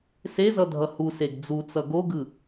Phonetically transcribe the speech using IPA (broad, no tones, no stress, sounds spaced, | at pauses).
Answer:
s e z ʌ dʱ ʌ h u s e ɡ d͡z u t͡s ʌ ɡ o ɡ ɯ